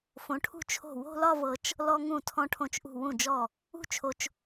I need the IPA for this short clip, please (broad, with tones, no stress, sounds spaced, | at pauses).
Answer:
f õ˩˧ ʈʰ ṳ˧ t͡ʃʰ o̤˧˩ w o̤˥˧ l ɒ˥˧ v ɤ˧ t͡ʃ | l ɔ˧ ŋ ũ˧˩ tʰ ɔ̃˧ ʈʰ õ˧˩ t͡ʃ ʔ ṳ˧˩ w ũ˧˩ d͡ʒ ɔ˧˩ | ṳ˥˧ t͡ʃʰ o˧ t͡ʃ